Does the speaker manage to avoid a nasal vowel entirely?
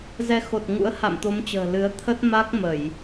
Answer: yes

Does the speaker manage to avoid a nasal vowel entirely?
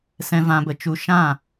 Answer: no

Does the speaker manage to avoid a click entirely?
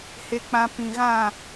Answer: yes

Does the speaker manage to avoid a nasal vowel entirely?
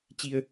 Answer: yes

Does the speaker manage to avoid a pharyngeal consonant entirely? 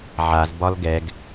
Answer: no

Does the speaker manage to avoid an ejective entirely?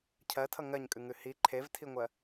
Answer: no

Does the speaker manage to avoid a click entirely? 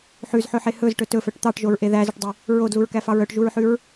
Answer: yes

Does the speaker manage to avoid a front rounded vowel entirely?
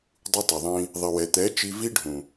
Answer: yes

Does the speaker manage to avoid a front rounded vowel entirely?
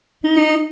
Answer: no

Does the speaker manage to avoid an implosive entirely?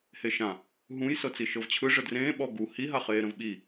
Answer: no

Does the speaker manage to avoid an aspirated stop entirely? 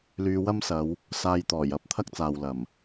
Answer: no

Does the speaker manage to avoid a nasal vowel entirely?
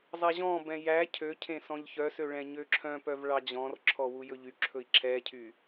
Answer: no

